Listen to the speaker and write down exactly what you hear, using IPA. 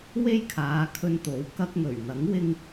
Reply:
we˥jkʰaː˨˧ kʰɵ˧nt̪o˨˥w kɐ˧k̚ŋɵ˨˩ɥn̪ɐ˨˥ŋwɪ˧ŋ

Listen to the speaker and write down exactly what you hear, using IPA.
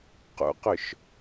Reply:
qṵqʏʃ

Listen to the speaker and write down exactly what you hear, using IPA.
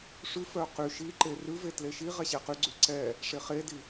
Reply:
ʂʉ fœqy ʃi ǃerʉvetle ʃiʁɛ ɕɛqyɡ͡ǀy ǀɛ | ʂeχedi

